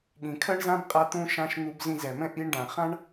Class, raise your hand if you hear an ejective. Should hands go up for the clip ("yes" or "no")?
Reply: yes